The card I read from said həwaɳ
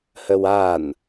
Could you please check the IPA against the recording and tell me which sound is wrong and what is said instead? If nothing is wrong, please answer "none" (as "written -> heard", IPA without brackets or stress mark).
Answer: ɳ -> n